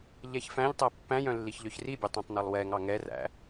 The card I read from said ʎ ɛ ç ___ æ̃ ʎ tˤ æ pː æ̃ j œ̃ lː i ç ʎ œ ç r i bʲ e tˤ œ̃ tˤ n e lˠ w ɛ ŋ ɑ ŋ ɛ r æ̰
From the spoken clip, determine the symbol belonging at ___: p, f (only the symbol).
f